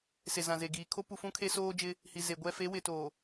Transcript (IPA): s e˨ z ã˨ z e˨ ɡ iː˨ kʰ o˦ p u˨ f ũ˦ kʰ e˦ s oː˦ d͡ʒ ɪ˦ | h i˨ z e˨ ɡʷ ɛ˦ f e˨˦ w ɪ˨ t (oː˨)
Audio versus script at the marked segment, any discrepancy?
no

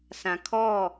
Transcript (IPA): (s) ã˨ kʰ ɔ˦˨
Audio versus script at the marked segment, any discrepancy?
no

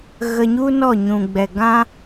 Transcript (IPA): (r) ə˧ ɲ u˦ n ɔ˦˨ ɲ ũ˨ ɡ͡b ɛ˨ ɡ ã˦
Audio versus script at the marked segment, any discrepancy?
yes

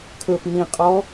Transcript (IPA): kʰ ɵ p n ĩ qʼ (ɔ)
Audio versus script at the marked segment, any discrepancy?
no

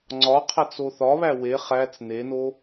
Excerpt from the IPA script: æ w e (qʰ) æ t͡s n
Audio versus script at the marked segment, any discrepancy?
yes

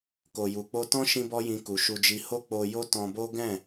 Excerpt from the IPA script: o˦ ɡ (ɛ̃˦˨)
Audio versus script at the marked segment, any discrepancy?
no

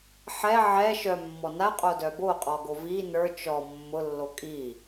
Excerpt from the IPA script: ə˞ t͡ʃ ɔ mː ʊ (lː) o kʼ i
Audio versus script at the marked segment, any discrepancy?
no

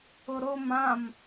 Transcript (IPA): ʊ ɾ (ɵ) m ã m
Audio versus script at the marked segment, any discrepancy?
yes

